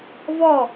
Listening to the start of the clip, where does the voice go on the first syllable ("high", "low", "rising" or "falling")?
falling